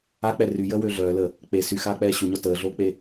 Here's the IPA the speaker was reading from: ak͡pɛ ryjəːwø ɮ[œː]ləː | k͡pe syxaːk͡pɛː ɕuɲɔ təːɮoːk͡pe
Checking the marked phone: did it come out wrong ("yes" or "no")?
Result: no